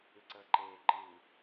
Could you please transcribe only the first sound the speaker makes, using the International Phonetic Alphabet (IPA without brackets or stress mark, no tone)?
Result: ʉ